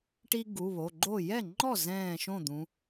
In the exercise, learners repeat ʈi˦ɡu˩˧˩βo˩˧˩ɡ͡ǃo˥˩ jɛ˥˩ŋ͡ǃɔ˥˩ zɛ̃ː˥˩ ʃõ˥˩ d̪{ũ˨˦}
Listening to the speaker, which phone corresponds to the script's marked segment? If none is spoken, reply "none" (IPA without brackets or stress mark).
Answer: ũ˨˦